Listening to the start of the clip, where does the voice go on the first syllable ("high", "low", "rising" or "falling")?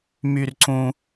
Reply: low